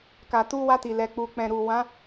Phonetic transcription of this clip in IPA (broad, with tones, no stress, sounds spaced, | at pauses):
k a˨ t u˧ w a˧ t i˨ l ɛ˨ k͡p u˨ k͡p ɛ̃˨ ɾ u˨ w ã˨˦